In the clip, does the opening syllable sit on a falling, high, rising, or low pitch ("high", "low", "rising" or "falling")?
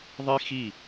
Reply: high